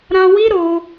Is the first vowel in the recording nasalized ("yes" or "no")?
yes